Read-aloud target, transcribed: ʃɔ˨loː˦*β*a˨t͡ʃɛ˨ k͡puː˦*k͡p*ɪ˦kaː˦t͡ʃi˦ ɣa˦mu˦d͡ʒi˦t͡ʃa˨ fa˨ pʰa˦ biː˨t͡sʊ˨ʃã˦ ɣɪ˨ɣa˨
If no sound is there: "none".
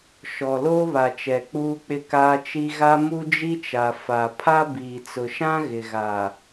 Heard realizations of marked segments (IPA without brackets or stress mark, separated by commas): β, k͡p